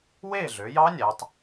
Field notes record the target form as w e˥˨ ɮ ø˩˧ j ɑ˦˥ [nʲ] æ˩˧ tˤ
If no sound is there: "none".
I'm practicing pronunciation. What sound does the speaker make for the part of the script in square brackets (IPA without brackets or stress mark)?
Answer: nʲ